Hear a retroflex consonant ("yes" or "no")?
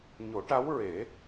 yes